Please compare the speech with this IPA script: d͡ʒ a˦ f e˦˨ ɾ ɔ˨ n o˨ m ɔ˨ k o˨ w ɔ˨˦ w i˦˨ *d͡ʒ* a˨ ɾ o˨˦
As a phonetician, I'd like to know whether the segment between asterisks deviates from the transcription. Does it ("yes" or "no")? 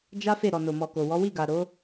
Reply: yes